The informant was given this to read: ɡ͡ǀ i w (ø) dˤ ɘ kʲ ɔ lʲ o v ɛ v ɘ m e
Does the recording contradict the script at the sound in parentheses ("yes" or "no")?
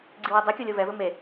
yes